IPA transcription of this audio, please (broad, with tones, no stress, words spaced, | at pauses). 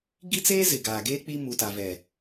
ɡi˦t͡seː˦zɪ˨ ɡaː˨ɡeː˦ k͡pi˦ mu˨ta˨vɛ˨